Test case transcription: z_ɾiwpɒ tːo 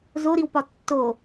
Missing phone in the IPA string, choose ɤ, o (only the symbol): o